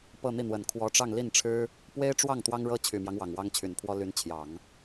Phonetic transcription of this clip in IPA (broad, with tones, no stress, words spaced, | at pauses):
pɤ˥˧n̪i˥˩n̪wə˨˩n kʰwɔ˧˥ʈ͡ʂɑ˥˧ŋli˥˩nʈ͡ʂʰɻ̩˥ | pwe˥ɪ̯ʈ͡ʂwɑ˥˩ŋ t̪wɑ˥ŋɻɤ˥ t͡ɕʰy˨˩mjɑ˦ŋ wɑ˨˩ŋwɑ˥ŋt͡ɕʰy˨˩npʰwɔ˥ ly˧˥n t͡ɕʰjɑ˨˩˦ŋ